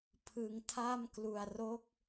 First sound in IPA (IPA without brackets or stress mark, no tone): pʰ